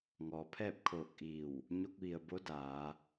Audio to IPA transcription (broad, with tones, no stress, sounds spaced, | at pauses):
ŋ ɔː˩ pʰ ɛː˥˨ p̚ kʰ oː˧˩ k̚ ʔ iː˧˩ w | ɲ o˧ k̚ ʋ i˩ ə̯ b o˧˥ d aː˩˧